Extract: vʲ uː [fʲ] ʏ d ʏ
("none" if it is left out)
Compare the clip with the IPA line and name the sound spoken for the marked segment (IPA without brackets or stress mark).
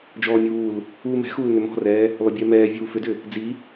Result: f